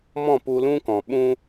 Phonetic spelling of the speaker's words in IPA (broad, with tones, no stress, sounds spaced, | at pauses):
m ɔ̃˦˨ p u˧ l ũ˦ k ɔ̃˨ ɓ ũ˧